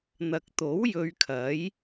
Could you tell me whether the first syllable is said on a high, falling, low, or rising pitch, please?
low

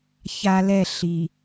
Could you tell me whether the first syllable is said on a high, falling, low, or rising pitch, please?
high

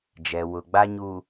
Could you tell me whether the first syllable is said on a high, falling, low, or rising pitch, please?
low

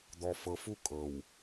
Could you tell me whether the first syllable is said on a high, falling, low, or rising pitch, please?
low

